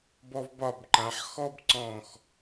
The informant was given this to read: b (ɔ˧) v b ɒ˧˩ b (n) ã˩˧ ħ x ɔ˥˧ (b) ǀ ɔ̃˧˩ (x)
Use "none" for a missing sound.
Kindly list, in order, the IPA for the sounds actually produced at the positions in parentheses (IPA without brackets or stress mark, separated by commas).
ɔ˧, ǃ, b, x